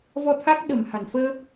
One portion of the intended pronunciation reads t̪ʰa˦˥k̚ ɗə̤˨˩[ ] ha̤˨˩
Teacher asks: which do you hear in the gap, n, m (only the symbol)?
m